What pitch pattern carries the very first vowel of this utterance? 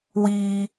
high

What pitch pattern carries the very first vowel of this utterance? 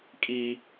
high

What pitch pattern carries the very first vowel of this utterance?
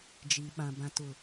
low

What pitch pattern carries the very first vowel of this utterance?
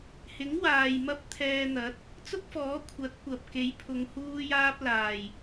rising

